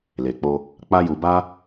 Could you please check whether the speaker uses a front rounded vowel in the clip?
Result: no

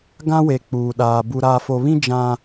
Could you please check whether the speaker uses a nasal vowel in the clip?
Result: yes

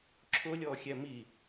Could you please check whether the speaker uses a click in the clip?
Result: yes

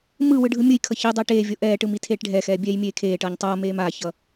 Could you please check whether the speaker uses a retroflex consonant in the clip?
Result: yes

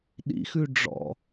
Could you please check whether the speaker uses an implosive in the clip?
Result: yes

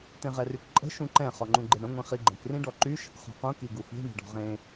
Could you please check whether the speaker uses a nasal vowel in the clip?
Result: yes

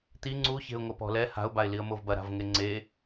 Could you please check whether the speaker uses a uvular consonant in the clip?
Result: no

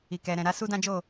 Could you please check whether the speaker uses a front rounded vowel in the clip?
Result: no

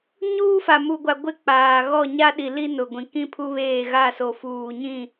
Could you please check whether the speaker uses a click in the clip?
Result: no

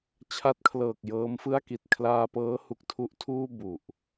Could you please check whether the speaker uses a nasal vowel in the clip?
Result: no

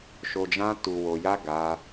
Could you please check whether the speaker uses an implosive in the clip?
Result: no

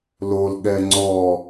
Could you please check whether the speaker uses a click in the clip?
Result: yes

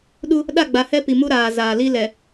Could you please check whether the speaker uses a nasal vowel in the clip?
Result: no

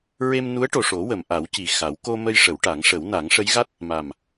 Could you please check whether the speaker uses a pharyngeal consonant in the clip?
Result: no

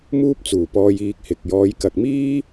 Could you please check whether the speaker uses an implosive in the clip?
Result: no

